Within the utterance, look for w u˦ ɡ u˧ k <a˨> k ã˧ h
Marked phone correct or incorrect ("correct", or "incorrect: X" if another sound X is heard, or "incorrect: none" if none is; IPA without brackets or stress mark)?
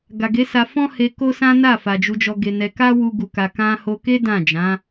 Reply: incorrect: a˧